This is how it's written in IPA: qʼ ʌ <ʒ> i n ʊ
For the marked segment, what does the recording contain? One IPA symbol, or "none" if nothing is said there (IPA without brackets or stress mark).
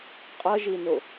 ʒ